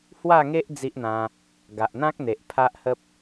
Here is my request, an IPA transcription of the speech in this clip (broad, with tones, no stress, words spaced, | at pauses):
hwa˥˧ŋe˦ʔ d͡zi˦ʔn̪ã˧ | ɡa˨ʔn̪ã˦k̚n̪e˨ʔ pʰa˦ʔhə˦p̚